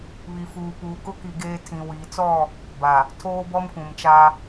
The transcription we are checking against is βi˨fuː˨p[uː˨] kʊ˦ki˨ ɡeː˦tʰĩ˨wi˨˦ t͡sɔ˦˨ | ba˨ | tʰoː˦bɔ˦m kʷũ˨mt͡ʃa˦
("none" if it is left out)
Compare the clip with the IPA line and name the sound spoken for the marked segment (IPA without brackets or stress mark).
uː˨